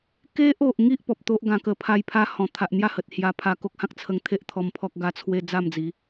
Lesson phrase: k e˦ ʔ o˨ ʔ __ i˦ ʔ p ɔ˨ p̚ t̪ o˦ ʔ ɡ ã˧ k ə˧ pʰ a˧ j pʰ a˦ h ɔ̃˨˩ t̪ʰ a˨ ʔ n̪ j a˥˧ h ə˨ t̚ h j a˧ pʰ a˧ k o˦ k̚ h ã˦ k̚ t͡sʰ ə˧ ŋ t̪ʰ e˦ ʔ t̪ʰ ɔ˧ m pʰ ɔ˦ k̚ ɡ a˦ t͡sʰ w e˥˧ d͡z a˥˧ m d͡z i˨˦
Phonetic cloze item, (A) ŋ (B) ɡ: A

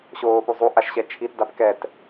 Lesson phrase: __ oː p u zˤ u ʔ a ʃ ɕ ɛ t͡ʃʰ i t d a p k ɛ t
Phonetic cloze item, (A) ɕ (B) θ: A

